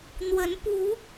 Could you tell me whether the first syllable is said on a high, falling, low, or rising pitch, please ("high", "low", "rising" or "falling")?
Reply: rising